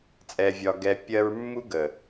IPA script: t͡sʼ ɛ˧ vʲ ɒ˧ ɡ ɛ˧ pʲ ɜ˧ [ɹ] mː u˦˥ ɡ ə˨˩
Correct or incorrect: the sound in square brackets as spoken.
correct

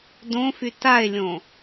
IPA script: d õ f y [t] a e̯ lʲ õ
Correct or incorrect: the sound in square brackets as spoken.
correct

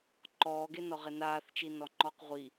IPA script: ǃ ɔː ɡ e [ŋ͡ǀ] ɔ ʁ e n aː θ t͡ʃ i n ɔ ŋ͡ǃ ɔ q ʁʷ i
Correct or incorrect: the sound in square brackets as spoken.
incorrect: n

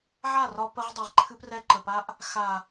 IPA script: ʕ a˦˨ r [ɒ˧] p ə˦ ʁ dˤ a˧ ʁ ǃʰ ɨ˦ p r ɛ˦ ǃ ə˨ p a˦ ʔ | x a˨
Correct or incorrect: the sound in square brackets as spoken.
correct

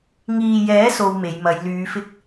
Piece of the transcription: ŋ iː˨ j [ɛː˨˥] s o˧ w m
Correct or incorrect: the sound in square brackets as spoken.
correct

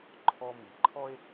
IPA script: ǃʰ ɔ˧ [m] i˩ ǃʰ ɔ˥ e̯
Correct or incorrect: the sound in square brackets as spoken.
correct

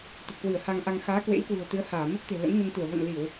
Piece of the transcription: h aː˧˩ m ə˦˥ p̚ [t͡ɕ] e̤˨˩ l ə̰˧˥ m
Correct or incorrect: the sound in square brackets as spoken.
incorrect: t̪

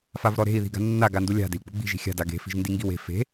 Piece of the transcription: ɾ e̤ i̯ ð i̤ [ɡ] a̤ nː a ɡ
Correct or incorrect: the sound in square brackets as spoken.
correct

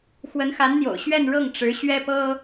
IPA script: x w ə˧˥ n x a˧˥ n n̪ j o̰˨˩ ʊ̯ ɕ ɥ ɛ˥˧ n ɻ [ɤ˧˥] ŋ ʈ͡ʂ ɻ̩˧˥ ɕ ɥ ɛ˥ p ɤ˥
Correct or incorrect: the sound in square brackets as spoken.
incorrect: ɤ˥˩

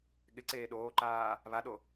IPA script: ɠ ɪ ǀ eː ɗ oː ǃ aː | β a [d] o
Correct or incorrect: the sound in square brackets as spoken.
incorrect: ɗ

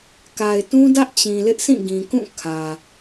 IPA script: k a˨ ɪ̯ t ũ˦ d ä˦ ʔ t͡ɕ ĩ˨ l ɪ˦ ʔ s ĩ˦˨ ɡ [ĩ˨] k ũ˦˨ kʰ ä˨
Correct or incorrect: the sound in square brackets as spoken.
correct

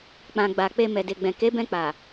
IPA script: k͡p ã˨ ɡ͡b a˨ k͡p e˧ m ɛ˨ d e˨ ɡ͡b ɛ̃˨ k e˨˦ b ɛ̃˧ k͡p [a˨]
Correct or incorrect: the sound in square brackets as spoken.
correct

